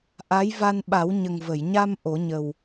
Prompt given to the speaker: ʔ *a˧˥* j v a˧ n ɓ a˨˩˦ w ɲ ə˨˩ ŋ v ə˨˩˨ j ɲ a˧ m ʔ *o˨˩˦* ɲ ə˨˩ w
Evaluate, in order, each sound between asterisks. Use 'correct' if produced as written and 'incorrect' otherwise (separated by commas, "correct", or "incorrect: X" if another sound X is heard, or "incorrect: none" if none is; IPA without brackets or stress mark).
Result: correct, correct